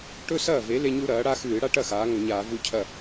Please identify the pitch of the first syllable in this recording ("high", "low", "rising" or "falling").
high